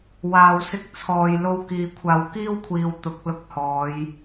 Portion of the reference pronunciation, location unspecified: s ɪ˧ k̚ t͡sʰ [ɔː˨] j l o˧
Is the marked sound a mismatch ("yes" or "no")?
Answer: no